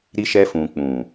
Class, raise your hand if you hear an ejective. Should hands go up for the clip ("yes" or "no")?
no